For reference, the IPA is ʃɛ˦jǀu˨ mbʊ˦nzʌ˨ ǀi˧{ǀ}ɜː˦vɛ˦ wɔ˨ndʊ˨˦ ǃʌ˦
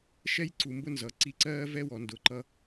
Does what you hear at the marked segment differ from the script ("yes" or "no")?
no